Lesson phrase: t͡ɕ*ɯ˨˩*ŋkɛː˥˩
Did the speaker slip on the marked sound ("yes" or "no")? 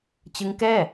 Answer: yes